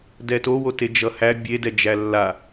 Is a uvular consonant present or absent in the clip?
absent